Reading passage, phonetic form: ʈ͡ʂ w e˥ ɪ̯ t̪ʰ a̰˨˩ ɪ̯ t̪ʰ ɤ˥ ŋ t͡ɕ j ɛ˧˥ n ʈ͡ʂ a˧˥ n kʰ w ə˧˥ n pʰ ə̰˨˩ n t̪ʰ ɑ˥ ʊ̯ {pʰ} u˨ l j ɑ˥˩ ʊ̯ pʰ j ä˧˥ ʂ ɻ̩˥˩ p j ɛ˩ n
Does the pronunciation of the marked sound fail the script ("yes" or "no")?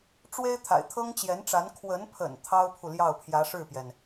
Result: no